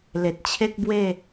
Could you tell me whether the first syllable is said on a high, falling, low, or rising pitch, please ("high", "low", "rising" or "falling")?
low